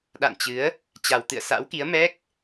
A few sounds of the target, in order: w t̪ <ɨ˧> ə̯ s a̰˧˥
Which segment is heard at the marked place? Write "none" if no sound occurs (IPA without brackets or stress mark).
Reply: ɨ̰˧˨